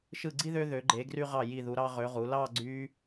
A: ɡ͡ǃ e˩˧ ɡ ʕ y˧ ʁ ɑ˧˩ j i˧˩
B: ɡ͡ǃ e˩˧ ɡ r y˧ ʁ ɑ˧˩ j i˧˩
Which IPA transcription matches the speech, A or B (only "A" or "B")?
B